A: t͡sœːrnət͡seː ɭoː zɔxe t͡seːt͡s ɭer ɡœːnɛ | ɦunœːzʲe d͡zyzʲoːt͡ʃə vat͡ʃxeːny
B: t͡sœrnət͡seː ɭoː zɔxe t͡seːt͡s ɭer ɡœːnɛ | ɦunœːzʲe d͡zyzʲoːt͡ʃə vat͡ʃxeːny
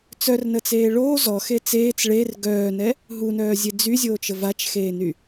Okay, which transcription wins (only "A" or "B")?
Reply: B